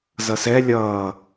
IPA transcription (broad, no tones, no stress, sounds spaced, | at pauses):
z ʌ s ɛ lʲ ʌː